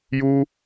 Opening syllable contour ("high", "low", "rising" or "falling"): high